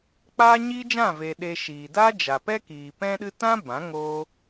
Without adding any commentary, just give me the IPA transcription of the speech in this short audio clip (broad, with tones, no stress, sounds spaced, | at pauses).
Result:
k͡p aː˦ ɲ iː˦ d͡ʒ ã˦˨ v eː˨ ɗ e˧ ʃ iː˨ d aː˦ d͡ʒ a˨ p ɛ˦ k iː˨ p ɛ̃˦ ɗ ɨ˦ t ã˦ b ã˨˦ ŋ oː˦